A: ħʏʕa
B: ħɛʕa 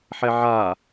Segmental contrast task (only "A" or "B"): B